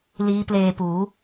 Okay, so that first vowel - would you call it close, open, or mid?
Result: close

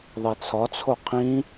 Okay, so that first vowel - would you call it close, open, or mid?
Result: mid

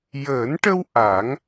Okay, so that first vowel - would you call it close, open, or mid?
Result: mid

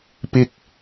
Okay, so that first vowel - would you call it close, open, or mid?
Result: close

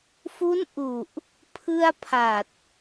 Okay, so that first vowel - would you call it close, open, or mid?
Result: close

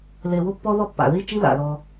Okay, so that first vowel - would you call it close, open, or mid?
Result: mid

